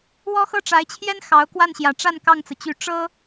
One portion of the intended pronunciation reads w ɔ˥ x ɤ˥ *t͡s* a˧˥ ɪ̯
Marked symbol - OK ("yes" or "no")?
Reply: no